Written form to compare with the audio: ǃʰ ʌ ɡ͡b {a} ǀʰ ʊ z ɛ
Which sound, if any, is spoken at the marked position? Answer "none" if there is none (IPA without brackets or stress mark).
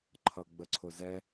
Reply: ə